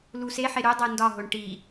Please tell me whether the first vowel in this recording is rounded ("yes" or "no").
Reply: yes